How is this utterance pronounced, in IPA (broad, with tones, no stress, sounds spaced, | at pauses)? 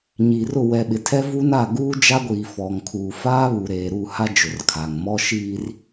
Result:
ɲ iː˨ r ʊ˦˨ w ɛ˨ ɓ ɪ˨ tʰ ɛ˦ v u˦ n a˦˨ ɡ uː˦ d͡ʒ a˦ ɡʷ iː˨ f ɔ˨ ŋ kʰ uː˨ f aː˦ β u˨ ɾ eː˨ ɾ u˦˨ h a˦ d͡ʒ ʊ˨ r kʰ aː˨ ŋ m ɔ˦ ʃ iː˦ r